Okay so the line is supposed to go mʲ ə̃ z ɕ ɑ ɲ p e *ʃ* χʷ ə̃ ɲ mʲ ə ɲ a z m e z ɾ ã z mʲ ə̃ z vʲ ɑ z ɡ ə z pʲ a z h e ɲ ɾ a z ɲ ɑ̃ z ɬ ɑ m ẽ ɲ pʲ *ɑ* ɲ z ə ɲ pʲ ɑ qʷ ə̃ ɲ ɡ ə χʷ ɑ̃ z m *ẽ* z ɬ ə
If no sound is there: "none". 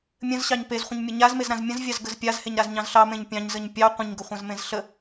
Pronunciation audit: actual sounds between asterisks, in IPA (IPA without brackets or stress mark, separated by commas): z, ɑ̃, ẽ